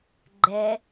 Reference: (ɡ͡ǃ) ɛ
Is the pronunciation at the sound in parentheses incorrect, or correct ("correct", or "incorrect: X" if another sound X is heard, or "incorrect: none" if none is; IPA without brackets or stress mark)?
correct